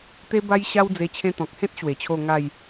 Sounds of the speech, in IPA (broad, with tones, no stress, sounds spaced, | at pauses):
t̪ e˦ b a˦ j ɕ a˦ w d͡z e˧ t͡ɕʰ ẽ˧ t̪ ɔ̃˨ k̚ h ẽ˦ t̚ ɕ w e˨˩ t͡ɕʰ o˥˧ ŋ a˥˧ j